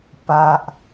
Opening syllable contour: low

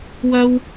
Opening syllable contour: high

